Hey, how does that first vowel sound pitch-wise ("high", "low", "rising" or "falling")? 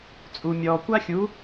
low